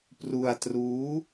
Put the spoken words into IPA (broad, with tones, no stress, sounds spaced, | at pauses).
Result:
p r u˧ a̯ t r uː˦˥